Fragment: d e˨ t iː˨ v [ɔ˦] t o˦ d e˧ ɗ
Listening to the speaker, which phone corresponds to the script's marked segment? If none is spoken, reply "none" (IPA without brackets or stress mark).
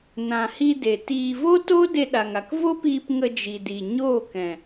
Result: o˦